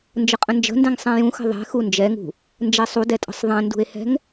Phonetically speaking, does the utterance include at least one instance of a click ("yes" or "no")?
no